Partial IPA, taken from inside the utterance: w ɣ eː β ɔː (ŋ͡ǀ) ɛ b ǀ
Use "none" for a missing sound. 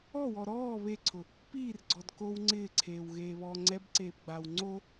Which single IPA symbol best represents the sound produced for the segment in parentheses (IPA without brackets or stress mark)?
ŋ͡ǀ